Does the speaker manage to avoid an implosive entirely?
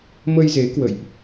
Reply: yes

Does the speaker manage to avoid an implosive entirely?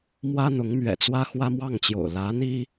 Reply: yes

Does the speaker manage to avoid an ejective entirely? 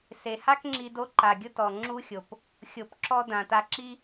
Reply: yes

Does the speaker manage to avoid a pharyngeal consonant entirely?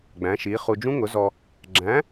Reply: yes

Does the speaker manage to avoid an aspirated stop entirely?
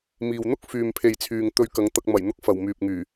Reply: no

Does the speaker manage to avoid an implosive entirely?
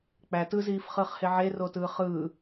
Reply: yes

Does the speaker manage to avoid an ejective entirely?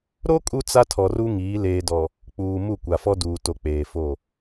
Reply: no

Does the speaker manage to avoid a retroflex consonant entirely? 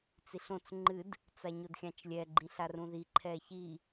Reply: yes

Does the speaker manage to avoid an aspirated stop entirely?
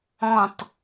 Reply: yes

